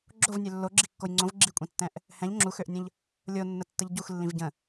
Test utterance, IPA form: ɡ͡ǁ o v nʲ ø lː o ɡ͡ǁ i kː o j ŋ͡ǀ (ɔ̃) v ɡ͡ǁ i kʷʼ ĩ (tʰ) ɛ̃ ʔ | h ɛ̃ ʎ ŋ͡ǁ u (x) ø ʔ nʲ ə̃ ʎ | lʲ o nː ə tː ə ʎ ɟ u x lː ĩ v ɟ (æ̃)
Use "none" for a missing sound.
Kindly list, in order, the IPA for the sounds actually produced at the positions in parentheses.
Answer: õ, tː, x, ə̃

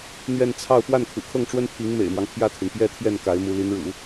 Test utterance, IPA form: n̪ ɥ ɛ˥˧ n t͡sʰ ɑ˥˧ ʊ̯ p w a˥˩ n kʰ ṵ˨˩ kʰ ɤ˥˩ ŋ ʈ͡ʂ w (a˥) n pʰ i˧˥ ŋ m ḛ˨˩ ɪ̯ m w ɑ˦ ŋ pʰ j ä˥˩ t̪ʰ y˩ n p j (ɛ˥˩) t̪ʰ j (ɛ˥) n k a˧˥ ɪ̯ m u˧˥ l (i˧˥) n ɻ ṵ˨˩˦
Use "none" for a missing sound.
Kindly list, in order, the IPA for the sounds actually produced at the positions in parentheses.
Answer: ə˥, ɛ˥, ɛ˥˩, i˧˥

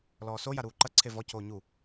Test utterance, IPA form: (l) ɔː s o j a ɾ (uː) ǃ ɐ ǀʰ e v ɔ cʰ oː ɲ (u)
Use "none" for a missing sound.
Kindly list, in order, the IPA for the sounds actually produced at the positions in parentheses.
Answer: l, uː, u

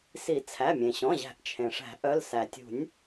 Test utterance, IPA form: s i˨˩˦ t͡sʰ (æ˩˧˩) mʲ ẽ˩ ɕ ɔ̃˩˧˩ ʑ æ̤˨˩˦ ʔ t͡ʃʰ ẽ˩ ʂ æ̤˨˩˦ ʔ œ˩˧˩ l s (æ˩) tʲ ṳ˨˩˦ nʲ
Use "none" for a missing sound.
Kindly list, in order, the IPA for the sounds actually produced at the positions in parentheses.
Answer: æ˩˧˩, æ˩

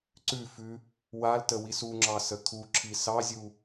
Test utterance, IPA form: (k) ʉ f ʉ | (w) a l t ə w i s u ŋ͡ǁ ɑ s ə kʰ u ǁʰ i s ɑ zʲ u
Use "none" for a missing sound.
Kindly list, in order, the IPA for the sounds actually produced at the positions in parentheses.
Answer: ǀ, w

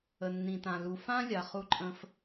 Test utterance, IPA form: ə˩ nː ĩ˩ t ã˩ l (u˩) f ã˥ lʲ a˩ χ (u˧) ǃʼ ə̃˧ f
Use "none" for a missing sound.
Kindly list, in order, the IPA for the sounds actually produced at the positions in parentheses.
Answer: u˩, u˧

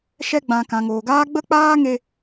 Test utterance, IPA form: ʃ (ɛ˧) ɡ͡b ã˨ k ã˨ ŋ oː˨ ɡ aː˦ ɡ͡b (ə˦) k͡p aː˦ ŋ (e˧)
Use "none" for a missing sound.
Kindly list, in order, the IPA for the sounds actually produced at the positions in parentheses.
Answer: ɛ˧, ə˦, e˧

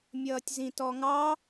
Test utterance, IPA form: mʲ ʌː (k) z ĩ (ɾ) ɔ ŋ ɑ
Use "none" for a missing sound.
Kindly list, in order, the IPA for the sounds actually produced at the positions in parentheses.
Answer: tʲ, t

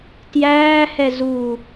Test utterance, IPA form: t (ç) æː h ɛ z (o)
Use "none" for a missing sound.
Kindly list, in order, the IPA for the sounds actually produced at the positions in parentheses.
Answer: j, u

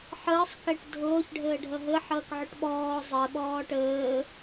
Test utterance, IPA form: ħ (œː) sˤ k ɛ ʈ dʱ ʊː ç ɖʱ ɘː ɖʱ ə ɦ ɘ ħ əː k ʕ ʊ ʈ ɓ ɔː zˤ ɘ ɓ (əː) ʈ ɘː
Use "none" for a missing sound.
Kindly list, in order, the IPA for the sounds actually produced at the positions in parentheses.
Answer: əː, ɔː

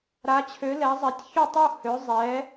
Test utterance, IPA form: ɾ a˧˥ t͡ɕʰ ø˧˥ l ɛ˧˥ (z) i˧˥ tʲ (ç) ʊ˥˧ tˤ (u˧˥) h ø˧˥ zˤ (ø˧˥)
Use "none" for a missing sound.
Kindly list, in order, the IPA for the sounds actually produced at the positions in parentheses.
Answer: zˤ, ç, u˥˧, ɛ˧˥

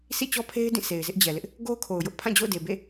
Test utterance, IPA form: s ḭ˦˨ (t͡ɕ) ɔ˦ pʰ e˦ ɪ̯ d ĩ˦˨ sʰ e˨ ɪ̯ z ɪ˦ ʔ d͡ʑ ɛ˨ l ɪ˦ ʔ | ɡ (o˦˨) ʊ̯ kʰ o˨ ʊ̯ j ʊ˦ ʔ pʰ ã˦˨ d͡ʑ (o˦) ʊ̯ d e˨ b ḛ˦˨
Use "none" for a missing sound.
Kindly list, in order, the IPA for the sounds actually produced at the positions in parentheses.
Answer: t͡ɕ, o˦, o̰˦˨

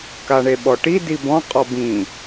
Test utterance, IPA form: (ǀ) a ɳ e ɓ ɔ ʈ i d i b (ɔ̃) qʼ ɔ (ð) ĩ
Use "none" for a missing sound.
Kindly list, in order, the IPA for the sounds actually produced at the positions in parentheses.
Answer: k, ɔ̃, b

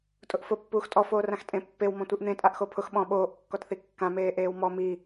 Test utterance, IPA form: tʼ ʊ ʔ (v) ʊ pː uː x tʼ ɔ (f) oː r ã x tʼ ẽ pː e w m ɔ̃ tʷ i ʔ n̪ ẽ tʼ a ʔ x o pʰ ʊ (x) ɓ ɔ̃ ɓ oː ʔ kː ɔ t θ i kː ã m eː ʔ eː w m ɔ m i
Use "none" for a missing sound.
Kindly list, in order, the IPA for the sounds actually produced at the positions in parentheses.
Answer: f, f, x

